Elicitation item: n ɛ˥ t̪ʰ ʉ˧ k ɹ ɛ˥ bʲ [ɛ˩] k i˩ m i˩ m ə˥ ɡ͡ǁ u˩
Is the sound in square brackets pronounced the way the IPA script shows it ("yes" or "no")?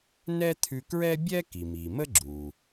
no